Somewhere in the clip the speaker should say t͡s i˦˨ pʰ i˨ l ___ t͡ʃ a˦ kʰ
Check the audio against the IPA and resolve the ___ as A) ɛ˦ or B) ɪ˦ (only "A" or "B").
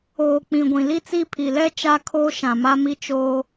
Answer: A